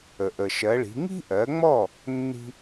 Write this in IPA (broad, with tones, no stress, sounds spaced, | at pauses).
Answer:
ə˩ ʔ ə˩ ʃ ɜ˩˥ ɭ i̤˩˥ ŋ i̤˥ ʔ ɜ˩˥ ŋ͡m ɔ˥˩ | nː i̤˥